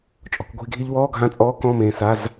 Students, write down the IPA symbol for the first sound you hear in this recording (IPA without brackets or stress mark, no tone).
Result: t͡ʃʼ